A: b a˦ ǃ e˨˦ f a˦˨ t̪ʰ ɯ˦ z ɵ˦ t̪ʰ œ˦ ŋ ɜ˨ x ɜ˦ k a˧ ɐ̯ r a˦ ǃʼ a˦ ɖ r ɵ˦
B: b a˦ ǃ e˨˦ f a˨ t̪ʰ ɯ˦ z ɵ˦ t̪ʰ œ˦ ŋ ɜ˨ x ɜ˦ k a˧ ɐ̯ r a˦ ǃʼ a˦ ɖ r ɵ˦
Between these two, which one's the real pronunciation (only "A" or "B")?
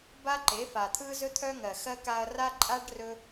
B